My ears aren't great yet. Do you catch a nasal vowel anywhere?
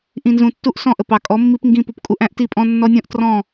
yes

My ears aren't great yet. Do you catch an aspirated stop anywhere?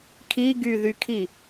yes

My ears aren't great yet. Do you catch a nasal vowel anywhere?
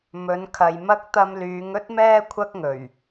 no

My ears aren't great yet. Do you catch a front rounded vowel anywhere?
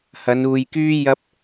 yes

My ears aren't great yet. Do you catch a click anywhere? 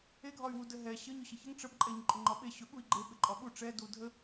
yes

